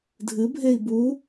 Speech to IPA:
dʱ ɨ bʱ e i̯ b u

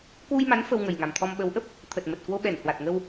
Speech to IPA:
k w u˧ j m a˨˦ n f ə˧ w ŋ ə˨˩ j ŋ a˨˩ m t̪ʰ ɔ˧ m ɓ ə˨˦ w ʔ ə˦˥ p̚ | t̪ʰ ə˨˩ t̚ m ə˨˩ t̚ k w o˧ ɓ ɛ˧˩ n h w a˨˩ t̚ ŋ ə˧ w

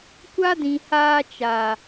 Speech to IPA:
kʷ a˦ d ĩ˨ h aː˧ t͡ʃ a˨

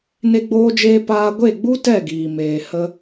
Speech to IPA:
n e˦ ɡ͡b oː˦ d͡ʒ eː˦ p aː˦ ɡʷ e˦˨ ɡ͡b u˦ t ɛ˦˨ ɡ iː˨ m eː˨ h ə˧

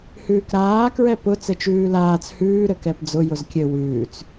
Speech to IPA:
h ʉː k ɾ aː k ɹ ɛ p ʊ t͡s ɘ t͡ʃ ʉː l aː t͡s h ʉː ɾ ɘ k ɛ p d͡z ʊ j ʊ z kʲ ɘ w ʉː t͡s

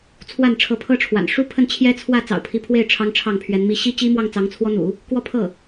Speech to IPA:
t͡sʰ w a˥˩ n ʈ͡ʂʰ ɤ˧˥ pʰ ɤ˥ ʈ͡ʂʰ w a̰˨˩ n ʂ u˥ pʰ ə˥˩ n t͡ɕʰ j ɛ˥ t͡sʰ w ä˥˩ t͡s ɑ̰˨˩ ʊ̯ pʰ i˧˥ pʰ w e˥˩ ɪ̯ ʈ͡ʂʰ ɑ˥ ŋ ʈ͡ʂʰ ɑ˥˩ ŋ pʰ ɥ ɛ˧˥ n m i˥˩ ɕ i˥ t͡ɕ i˥ m w ɑ˥˩ ŋ t͡s ɑ˧˥ ŋ t͡sʰ w ɔ˥ n̪ ṵ˨˩˦ | k w ɔ˥˧ pʰ ɤ˥˩

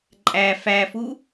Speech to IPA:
ǃʼ æ f æ f u

